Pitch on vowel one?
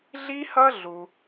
high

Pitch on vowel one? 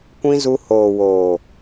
high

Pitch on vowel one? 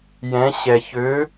rising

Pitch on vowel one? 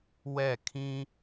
falling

